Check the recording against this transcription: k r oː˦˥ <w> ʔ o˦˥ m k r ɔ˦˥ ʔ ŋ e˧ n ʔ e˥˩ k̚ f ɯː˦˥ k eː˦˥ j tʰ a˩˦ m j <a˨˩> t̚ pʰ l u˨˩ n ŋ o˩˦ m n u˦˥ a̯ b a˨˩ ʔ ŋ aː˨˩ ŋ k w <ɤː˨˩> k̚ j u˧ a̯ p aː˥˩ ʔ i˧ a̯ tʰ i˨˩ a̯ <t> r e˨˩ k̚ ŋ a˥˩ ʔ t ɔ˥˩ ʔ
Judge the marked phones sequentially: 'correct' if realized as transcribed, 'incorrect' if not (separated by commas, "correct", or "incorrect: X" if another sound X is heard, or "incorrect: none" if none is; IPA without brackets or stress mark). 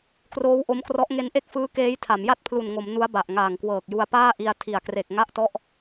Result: correct, incorrect: a˥˩, correct, incorrect: k